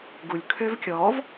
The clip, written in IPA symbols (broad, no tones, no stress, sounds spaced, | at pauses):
ɡ u lʲ kʰ ø v kʲ ɔ v